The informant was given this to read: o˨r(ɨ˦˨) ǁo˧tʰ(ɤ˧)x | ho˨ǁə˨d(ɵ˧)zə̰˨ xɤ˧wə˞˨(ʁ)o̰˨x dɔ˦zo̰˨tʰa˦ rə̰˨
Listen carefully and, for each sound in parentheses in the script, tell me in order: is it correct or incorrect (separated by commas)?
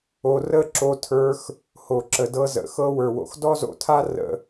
incorrect, incorrect, incorrect, incorrect